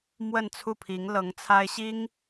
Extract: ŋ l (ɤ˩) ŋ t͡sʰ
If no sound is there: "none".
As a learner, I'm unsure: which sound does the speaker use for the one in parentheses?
ɤ˧˥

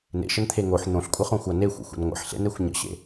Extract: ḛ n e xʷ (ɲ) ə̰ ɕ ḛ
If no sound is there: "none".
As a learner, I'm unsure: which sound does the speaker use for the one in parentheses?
ɲ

